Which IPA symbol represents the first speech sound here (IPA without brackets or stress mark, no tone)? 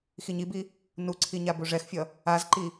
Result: x